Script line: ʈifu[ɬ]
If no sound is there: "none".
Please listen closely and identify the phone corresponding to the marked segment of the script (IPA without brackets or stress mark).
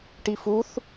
θ